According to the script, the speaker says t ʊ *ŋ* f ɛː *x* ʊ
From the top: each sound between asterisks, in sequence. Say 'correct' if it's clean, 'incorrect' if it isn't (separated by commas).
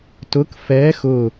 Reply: incorrect, correct